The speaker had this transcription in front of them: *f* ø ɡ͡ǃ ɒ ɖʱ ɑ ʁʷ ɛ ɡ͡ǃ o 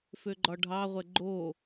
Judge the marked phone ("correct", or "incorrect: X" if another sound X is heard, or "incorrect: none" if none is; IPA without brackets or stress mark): correct